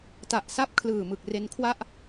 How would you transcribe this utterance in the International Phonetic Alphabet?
ta˨˩ʔ sa˥˩p̚ kʰlɯː˨˩mɯ˨˩k̚ re˧nkʰwa˥˩ʔ

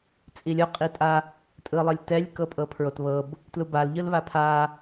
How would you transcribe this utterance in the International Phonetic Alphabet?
t͡sʼilʲɔ qʼitʼa | tʼɯlˠɤlʲtɛlʲ kɤpʼɤpʰɹotβɤb | tlubal ʎɯlβapʰa

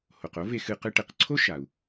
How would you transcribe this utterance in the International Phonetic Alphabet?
ho˩qo˥ve˧xɨ˧ qɨ˧ʈe˩qǀʰo˥ ʃa˩u̯

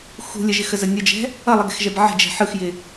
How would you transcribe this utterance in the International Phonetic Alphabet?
xṳ lʲəʒɪxəzə nʲəd͡ʒɛ̤ | ʌlˠəɡɛ̤xʒɛb ʕə̤d͡ʒɛ̤ ħɯxjɪ

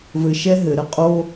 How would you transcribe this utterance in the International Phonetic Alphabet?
vɘ˧ʃɛ˥ ɦɘ˧˩˧ɾə˧qʼo˥

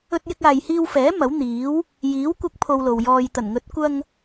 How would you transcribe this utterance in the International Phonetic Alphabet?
ɵ˧t̚jɪ˧k̚ aː˨jhiː˧wfɛː˨˥ mɐ˨˥wn̪iː˨˥w | jiː˨˥wkʷɐ˧k̚ pʰo˧wlo˨w jɔː˨j t̪ɐ˨˩nŋɵ˨˥t̚ kʷɐ˧ŋ

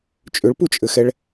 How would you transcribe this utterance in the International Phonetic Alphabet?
t͡ʃʼʏɭput͡ʃʼɘxɛɭ

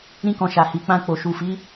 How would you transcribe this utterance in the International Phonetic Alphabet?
ɾĩ˦kɔ̃˧ ʃa˨hi˨k͡pã˧ k͡po˨ʃu˨fi˨˦

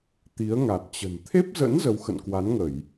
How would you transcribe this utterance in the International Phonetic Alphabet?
t̪i˨˦ə̯ŋa˨˩t̚ t͡ɕə̤˨˩n t̪ʰe˦˥p̚zə̰˧˥n zə˧w xə̰˧˨nkwa˨˦nŋə˧˩˨j

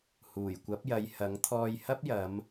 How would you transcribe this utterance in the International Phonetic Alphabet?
huː˨˩jkʷɐ˨˥p̚jɐ˨˧j hɐ˨˥ŋ t̪ʰɔː˧jhɐ˥p̚jɐ˨˧m

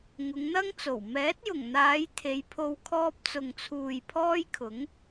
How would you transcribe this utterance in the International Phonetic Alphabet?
ŋʊ˨˧ŋn̪ɐ˥ŋt͡so˨˩w mɛː˨˥t̚jʊ˨˩ŋn̪aː˨˧j t̪ʰe˨˧jpʰo˧w kʰɔː˧p̚t͡sʊ˨ŋt͡sʰuː˨j pʰɔː˥jkʰʊ˨˥ŋ

